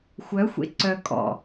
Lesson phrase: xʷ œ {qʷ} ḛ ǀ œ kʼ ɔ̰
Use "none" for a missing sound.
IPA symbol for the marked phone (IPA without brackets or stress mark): xʷ